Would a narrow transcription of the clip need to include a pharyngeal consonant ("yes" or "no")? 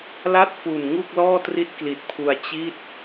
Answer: no